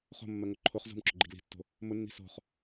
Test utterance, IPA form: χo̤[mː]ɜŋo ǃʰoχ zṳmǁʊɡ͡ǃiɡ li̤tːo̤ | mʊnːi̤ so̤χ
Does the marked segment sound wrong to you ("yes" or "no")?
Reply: no